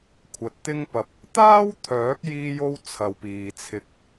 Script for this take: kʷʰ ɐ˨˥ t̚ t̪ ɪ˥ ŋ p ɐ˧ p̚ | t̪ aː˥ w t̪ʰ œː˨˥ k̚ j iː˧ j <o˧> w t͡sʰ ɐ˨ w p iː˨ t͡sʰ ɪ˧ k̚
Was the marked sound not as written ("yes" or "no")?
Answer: no